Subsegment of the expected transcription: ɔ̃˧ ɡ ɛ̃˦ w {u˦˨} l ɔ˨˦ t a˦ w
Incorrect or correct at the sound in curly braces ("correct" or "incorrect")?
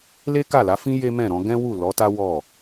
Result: correct